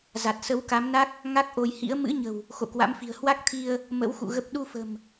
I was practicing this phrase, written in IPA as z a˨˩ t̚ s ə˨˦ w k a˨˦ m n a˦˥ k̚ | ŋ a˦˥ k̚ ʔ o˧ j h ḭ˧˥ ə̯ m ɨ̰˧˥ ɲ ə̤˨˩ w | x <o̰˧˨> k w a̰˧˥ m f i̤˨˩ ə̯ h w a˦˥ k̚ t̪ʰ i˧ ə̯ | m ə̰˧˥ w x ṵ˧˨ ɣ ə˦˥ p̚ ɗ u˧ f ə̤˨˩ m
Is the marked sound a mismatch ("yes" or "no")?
no